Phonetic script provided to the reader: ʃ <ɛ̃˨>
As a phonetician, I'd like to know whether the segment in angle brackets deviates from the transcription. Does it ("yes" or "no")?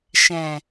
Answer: no